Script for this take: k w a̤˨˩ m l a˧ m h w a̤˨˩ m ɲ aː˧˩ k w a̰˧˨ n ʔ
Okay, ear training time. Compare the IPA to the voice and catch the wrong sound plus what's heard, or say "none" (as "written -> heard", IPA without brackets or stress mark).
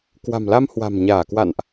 none